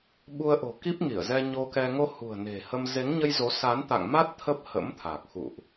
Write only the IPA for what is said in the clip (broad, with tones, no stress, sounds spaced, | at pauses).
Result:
ɓ u˧ ə̯ ʔ o̤˨˩ k i˦˥ p̚ ŋ i˧˩ ə̯ z ɛ˧ ɲ o˧ k ɛ˧ ŋ o˧ h ṳ˨˩ ə̯ n e̤˨˩ h ə˧ m z e˨˦ ŋ ɲ ə˧ j z o˨˦ s a˨˦ n t̪ a̰˧˨ ŋ m a˦˥ t̚ t̪ʰ ə˦˥ p̚ h ə̰˧˥ m t̪ʰ a˨˩ k̚ x ṵ˧˨ ʔ